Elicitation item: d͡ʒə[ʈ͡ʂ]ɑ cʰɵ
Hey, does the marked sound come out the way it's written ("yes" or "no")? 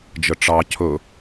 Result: yes